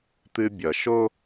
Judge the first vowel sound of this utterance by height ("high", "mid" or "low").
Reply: high